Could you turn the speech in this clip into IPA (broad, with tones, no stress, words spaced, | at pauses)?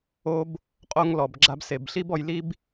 o˧b | qʼo˧ŋlɔ˩b ɡ͡ǁa˧bse˩bɬi˥b ɔ˧jli˥b